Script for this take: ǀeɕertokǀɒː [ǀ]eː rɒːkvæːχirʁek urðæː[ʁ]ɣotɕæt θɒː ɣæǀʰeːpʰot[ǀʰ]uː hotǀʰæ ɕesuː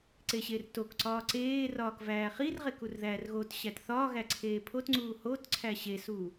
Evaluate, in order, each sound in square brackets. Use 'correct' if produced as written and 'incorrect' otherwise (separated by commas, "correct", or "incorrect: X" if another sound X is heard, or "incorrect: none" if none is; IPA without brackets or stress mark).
correct, incorrect: r, incorrect: ŋ͡ǀ